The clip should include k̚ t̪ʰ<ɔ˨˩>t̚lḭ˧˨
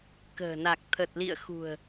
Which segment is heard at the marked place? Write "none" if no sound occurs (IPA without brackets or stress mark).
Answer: ə˨˩